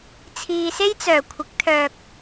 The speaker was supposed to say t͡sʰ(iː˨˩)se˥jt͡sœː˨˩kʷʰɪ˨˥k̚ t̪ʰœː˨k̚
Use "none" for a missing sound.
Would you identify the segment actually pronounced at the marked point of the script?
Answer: iː˨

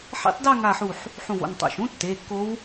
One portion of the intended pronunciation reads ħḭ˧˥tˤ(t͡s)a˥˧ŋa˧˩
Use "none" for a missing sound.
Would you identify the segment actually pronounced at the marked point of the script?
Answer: d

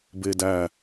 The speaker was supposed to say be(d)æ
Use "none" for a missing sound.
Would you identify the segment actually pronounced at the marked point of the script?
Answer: d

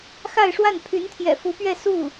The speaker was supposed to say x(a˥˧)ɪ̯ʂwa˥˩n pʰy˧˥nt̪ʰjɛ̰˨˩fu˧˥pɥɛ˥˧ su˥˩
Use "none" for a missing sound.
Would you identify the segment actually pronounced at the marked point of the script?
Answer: a˥˧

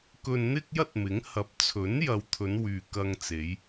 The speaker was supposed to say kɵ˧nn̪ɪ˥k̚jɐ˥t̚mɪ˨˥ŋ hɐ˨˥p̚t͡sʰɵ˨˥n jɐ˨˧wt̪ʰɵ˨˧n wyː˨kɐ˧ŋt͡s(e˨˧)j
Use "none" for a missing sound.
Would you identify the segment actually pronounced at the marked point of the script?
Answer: e˨˧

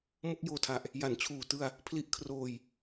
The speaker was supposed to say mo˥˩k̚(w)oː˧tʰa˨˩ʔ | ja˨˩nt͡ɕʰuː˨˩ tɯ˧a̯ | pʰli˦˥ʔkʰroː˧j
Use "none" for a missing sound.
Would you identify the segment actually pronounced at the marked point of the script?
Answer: j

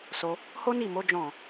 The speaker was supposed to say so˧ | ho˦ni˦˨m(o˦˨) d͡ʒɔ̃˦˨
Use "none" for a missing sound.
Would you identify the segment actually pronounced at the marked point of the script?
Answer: o˨˦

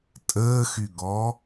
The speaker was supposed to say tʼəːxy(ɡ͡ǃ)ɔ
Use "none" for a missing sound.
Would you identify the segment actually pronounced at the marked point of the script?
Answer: ɡ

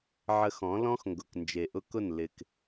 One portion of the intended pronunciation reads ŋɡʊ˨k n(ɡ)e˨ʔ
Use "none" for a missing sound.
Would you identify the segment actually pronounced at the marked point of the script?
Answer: d͡ʒ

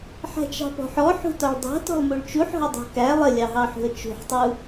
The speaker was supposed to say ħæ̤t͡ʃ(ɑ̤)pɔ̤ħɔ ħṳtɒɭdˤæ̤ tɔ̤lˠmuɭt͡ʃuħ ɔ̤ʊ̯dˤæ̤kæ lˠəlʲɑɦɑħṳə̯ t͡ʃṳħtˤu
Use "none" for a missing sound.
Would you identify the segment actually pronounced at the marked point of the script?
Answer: ɑ̤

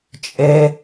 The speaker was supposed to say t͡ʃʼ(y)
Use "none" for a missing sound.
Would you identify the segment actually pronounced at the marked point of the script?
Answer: e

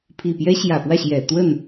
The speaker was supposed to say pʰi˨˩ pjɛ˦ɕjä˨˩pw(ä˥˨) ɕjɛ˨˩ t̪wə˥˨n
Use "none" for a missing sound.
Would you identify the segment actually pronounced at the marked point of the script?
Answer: ä˥˨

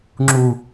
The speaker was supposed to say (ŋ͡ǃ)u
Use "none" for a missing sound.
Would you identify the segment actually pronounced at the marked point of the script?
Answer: ŋ͡ǁ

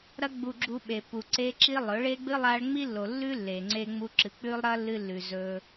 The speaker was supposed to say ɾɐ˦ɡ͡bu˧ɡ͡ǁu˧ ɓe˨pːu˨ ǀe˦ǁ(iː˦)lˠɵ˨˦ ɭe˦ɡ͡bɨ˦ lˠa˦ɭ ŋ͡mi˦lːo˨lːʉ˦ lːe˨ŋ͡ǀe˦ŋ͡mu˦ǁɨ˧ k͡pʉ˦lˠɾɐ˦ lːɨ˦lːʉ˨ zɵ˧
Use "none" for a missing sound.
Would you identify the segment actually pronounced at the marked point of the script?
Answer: i˦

